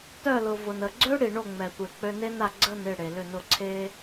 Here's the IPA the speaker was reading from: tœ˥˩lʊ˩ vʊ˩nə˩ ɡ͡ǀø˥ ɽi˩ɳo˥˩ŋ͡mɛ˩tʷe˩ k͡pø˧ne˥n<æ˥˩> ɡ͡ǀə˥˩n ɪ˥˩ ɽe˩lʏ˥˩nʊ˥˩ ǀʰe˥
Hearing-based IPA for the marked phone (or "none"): a˥˩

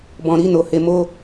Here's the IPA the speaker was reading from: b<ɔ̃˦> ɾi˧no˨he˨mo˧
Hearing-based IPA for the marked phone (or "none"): ɔ̃˨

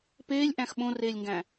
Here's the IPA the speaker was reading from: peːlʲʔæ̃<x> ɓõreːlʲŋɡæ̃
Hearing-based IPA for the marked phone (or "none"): x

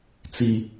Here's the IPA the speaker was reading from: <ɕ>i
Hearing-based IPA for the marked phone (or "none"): t͡s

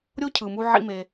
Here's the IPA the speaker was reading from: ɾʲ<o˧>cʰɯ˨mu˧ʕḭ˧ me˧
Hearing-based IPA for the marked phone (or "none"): o˦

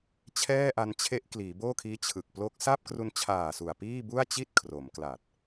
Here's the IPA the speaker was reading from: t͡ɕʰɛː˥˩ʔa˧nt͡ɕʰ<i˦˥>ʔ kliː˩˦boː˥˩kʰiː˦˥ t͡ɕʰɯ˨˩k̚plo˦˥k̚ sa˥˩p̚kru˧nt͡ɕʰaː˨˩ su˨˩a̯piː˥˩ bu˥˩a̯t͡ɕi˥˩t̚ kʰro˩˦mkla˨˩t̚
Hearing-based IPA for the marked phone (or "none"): e˦˥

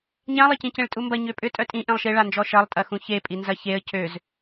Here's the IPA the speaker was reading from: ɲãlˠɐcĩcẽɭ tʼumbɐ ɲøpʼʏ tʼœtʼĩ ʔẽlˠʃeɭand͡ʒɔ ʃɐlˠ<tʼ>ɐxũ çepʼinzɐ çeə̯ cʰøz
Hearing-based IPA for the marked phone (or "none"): tʼ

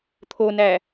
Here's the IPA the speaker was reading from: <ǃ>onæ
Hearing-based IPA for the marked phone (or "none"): t̪ʰ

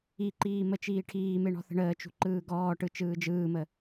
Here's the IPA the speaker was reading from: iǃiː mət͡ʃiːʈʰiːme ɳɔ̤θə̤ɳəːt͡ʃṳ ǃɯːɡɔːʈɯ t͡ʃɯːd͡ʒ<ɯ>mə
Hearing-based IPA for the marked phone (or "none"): ɯː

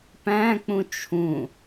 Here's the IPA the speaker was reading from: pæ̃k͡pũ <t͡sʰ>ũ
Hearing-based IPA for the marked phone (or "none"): t͡ʃʰ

